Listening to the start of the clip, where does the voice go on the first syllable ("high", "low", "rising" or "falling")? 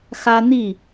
high